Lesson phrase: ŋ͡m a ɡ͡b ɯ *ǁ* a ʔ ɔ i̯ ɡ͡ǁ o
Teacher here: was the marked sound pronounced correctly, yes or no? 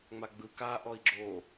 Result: no